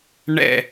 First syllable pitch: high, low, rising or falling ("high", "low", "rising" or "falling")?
falling